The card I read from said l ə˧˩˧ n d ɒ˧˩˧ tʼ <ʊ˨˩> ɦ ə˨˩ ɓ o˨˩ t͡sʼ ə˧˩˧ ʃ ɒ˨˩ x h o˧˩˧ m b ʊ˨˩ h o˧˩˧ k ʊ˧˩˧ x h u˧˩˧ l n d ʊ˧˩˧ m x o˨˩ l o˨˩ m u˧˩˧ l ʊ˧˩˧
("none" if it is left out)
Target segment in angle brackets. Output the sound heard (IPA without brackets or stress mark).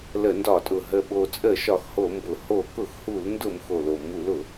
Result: ʊ˨˩